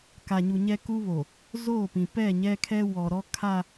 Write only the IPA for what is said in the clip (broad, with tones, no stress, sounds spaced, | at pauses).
k a˨ ɲ u˨ ɲ ɛ˦ k u˦ β o˨ | z oː˦˨ p ĩ˨ p ɛ˦˨ ɲ ɛ˦ kʰ ɛ˦ w ɔ˨ ɾ ɔ˦ kʰ a˦˨